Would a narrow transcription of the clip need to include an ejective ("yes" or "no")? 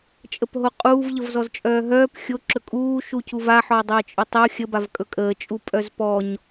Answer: yes